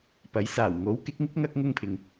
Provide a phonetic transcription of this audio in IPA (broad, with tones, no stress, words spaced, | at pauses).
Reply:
pɐ˨˥j saː˨˩wŋo˨˥wkɪ˨˥k̚ŋɪ˥k̚ ŋɐ˥k̚ŋʊ˥ŋpʰɪ˨ŋ